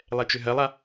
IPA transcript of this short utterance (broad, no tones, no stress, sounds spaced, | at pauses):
lˠ ɛ t͡ʃ ʏ ɦ ɜ lˠ a